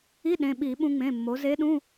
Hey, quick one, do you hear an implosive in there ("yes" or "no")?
yes